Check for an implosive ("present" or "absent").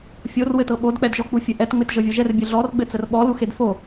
present